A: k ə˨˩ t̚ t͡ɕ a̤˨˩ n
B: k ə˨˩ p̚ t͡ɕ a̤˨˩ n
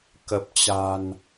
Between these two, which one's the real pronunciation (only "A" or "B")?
B